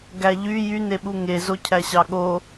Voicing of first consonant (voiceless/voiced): voiced